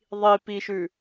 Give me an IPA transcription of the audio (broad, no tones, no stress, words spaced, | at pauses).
ðˤipiʃʉ